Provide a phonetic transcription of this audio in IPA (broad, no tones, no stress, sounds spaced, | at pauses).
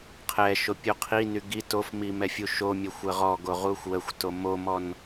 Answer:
qʰ ɛ ʃ o pʲ u qʰ i n y ɡ i t o f m i m ɛ fʲ u ʃ o mʲ ə xʷ ə ʁ ɔ ɡ o ʁ u xʷ w ə xʷ t o m o m ɔ n